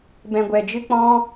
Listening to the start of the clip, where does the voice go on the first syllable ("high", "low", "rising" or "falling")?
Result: low